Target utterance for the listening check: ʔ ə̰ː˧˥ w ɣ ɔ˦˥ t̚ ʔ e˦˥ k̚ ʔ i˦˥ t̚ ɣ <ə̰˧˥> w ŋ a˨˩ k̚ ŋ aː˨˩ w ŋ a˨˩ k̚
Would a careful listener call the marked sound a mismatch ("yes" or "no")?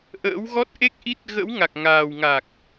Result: no